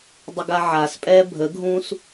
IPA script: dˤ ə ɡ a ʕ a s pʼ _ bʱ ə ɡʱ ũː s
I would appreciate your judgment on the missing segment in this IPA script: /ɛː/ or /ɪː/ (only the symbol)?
ɛː